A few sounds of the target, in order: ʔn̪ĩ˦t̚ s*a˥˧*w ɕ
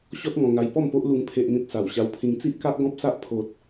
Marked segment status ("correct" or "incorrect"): incorrect